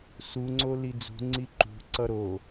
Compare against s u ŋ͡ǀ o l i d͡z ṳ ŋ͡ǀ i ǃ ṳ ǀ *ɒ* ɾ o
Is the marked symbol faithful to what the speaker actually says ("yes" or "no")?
no